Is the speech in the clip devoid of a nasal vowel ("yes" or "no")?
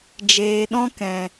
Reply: no